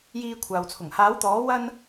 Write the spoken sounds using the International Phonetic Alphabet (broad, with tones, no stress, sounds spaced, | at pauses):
j iː˧ kʷʰ aː˨ w t͡sʰ ʊ˨˩ ŋ h aː˨˥ w t̪ ɔː˨˥ w ɐ˧ n